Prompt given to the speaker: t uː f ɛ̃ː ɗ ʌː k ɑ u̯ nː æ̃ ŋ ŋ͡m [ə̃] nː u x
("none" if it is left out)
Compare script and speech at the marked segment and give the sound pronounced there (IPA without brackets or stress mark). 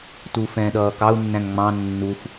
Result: ɑ̃